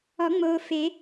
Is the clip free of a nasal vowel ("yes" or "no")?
yes